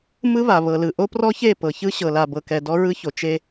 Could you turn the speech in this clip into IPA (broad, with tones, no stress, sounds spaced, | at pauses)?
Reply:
m ɯ˦ β a˨ β ɤ˨ l ɯ˨ ʔ o˦ p r ɔ˦ ç e˦˨ p ɤ˨ ç ɯ˦ ɕ ɤ˨ l a˨ b ɤ˨ k ɛ˨ d ɔ˦ ɹ ɯ˦ ç o˨ t͡ʃ e˦